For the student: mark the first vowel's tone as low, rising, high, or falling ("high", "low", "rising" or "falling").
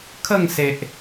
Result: falling